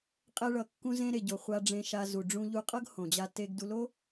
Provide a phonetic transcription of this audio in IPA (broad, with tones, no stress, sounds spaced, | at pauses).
qʼ ɛ˧ ɭ ʌ˩ kː ũ˧ z ẽ˧ ɾ e˩ ɟ o˩ χʷ a˧ ɖ͡ʐ ẽ˧ ʃ a˧ z u˩ ɖ͡ʐ ũ˧ ʎ u˧ qʼ ʌ˥ ɡ h õ˩ d͡ʑ a˧ t e˧ ɡ d u˧ l o˥